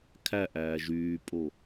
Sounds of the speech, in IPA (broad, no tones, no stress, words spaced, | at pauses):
kʰæʔæː ʒyːpʼo